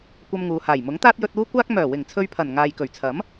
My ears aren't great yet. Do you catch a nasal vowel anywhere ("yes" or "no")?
no